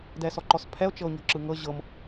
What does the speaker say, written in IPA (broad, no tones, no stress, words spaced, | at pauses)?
dɛsɔǃɔspʰɛo̯ t͡ʃɤo̯ɲɔ̤ǁɯŋɤ ʑɤm